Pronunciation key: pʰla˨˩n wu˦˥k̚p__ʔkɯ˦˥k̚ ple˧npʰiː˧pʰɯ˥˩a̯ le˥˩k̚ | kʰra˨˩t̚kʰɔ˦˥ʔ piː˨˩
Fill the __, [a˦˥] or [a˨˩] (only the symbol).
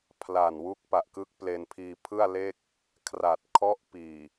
a˨˩